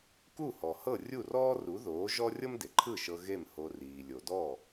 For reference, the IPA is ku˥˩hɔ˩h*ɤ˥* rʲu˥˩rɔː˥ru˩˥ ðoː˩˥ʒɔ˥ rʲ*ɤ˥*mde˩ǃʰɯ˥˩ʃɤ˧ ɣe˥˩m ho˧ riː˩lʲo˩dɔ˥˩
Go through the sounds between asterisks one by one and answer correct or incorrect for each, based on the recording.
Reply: incorrect: ɤ˥˩, correct

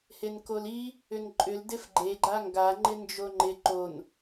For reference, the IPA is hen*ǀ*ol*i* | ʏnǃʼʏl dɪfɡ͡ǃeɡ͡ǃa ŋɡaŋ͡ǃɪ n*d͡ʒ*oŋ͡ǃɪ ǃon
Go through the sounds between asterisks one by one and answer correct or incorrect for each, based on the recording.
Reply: incorrect: k, correct, correct

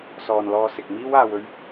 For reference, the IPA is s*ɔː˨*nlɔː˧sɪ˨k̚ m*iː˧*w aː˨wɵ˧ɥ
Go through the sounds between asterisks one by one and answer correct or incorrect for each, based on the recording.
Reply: correct, incorrect: iː˥

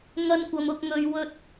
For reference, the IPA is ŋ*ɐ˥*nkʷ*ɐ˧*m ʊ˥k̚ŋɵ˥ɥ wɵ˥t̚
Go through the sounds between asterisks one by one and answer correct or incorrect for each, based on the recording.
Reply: correct, correct

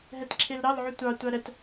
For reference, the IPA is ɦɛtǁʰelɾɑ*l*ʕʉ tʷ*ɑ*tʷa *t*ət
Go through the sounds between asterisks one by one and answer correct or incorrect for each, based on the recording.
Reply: correct, correct, incorrect: ɾ

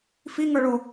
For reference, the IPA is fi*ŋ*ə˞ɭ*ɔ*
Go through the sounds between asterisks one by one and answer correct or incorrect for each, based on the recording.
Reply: correct, incorrect: o

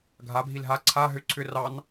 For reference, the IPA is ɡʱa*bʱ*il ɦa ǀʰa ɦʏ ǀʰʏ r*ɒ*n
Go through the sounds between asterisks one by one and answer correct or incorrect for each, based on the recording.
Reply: correct, incorrect: ɑ

